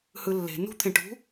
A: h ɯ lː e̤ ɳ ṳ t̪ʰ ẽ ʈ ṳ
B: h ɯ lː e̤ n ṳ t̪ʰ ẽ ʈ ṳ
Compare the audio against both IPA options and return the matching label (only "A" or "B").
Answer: B